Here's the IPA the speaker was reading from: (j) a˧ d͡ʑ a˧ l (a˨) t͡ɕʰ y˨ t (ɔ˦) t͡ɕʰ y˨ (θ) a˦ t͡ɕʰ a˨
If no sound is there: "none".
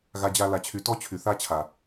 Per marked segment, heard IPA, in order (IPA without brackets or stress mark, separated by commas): ɣ, a˨, ɔ˦, θ